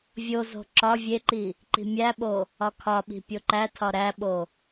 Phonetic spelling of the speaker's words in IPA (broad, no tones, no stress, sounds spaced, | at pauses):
vʲ o z o̤ ǁ ɒ vʲ e ǃ i | ǃ i̤ mʲ æ ɓ o | ɒ kʰ ɒ ɓ i̤ pʲ o ǃ æ tʰ ɒ ɾ æ ɓ o